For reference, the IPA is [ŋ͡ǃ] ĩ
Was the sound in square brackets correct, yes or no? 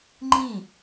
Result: yes